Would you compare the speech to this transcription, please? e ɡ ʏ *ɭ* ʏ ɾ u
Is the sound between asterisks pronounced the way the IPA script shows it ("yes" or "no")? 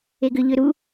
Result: no